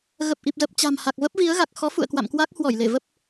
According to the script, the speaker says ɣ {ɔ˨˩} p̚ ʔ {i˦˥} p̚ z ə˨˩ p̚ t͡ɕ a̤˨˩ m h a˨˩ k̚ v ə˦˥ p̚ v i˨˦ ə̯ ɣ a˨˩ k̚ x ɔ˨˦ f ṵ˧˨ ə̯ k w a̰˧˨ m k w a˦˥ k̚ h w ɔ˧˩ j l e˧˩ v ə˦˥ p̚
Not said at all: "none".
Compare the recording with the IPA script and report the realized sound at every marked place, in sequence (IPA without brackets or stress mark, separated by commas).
ə˨˩, i˨˩